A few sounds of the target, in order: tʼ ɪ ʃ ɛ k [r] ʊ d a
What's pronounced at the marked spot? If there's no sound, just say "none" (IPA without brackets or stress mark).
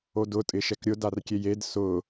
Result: ɾʲ